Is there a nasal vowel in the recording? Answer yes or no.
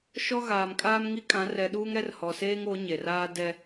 yes